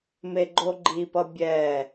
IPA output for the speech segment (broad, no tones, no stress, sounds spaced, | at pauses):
m e ɡ͡ǃ o ɡ͡ǃ i p ʌ bʲ ɛ